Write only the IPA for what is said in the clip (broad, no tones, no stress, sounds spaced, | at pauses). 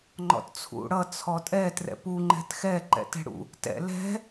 ŋ͡ǃ ɔ̰ t t͡sʰ ṵ ɽ ʌ t͡sʰ ɔ tʼ ɛ t r ɛ̰ p u ŋ͡ǃ ɛ̤ t x ɛ ǃ ɛ̰ t ɛ̤ ɽ ṵ | t ɛ̰ l ɛ̤